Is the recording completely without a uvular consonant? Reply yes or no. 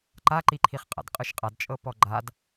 no